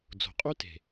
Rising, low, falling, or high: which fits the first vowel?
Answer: low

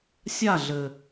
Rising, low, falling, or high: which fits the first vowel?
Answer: falling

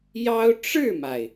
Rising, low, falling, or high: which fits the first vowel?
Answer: high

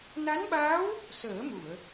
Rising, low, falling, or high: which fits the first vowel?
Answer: rising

